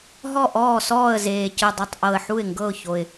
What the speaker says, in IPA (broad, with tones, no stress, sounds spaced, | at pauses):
ɦ ɔ˥˩ ʔ ɔː˥˩ s ɔː˥˩ ə̯ z eː˨˩ c ɯ˨˩ dˤ i˨˩ tˤ ʔ ɤ˨˩ ə̯ ħ u˥˩ ɪ̯ ŋ ɡ ɤ˥˩ ʊ̯ ç o˨˩ ɪ̯